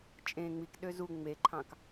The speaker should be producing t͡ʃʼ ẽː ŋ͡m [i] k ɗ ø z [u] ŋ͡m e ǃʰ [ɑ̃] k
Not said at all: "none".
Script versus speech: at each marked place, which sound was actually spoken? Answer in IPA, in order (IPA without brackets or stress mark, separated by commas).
i, u, ɑ̃